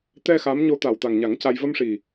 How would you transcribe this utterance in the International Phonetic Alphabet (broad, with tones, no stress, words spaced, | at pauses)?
t̪ɛ˧ xa˧˥m ɲo˧t̪a˨˩wt̪a˨˩ŋɲa˨˩˦ŋ ca˧j və˧mʂi˨˩